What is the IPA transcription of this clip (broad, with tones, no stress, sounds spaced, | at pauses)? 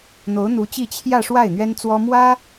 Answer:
n̪ o˧˥ ʊ̯ n̪ u˧˥ t͡ɕ i˥˧ t͡ɕʰ j ä˥˧ ʂ w a˥˩ ɪ̯ n̪ ɥ ɛ˥ n t͡s w ɔ˥ m w ä˥